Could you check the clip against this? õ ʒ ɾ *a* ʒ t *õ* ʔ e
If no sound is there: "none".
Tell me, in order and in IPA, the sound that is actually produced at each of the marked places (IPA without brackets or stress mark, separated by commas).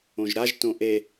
a, õ